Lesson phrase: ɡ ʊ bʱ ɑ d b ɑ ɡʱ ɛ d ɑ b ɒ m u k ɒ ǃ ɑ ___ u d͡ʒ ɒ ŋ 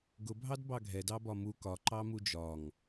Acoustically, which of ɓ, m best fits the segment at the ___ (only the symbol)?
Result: m